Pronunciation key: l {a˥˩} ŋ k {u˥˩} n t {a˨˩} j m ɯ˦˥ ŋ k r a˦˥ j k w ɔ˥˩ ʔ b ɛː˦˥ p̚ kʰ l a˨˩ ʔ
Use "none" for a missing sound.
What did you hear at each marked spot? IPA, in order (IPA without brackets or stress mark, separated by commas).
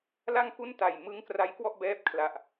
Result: a˥˩, u˥˩, a˨˩